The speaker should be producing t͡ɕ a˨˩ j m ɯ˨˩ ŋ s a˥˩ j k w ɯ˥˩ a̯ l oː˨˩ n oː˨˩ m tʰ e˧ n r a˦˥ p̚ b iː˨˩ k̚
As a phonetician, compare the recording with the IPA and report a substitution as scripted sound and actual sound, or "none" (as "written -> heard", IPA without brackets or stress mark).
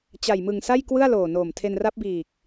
none